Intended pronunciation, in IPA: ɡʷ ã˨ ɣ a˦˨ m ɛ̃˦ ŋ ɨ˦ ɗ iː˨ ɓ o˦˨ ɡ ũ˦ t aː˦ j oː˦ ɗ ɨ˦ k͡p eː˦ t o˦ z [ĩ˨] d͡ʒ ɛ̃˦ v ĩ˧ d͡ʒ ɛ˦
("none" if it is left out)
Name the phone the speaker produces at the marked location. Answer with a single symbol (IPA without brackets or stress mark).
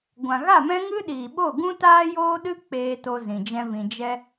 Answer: ĩ˨